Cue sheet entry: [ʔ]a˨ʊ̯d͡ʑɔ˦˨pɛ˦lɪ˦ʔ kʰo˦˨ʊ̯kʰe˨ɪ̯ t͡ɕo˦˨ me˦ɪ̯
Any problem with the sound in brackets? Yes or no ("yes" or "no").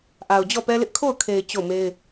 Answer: no